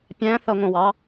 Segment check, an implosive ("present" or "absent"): absent